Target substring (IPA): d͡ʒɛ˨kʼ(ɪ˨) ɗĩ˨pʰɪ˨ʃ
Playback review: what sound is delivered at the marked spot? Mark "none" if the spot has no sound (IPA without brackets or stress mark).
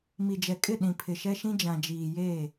ɪ˦˨